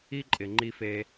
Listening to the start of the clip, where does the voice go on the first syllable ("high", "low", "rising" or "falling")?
high